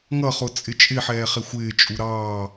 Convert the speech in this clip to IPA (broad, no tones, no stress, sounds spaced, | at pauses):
ŋ ʌ χ ʊ t͡sʼ ɪ t͡ʃʼ ɪ ħ ɛː χ ɪ xʷ ɪː t͡ʃʼ u ɾ ɑː